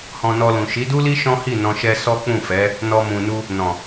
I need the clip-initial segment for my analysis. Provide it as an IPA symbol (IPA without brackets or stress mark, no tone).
h